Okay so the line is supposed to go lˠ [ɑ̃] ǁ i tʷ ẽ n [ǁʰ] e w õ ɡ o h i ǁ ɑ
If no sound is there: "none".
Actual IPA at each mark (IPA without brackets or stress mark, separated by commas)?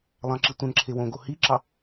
ɑ̃, ǁʰ